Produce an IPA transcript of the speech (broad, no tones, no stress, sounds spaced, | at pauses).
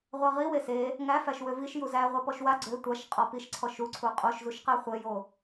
ʁʷ æ ʁ i w e s e | ŋ æ f æ ʃ w ø v i ʃ j u z æ ʁʷ æ p ɔ ʃ w a ɡ͡ǀ ø tʷ a ʃ qʼ ɔ p i ʃ ǀʰ ɔ ʃ u ǀʰ u qʼ o ʃ z u ʃ q æ χʷ e j o